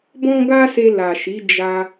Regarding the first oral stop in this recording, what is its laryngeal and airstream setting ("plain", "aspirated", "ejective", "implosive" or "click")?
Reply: plain